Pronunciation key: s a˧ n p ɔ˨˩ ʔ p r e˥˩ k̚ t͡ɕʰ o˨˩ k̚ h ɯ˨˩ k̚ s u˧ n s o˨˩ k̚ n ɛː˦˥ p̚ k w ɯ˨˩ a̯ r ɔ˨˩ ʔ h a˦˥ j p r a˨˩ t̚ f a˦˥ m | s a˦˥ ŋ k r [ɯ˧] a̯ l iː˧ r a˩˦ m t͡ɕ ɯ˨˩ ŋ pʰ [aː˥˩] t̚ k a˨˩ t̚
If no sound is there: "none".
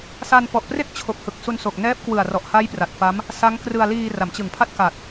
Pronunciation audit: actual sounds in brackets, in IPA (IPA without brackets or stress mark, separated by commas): ɯ˧, a˥˩